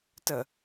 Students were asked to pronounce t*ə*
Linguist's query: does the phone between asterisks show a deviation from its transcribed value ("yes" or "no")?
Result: no